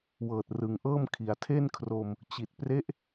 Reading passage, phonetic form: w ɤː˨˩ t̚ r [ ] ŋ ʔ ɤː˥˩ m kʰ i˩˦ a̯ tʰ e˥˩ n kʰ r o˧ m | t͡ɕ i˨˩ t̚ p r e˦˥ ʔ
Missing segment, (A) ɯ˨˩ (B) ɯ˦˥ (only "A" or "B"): A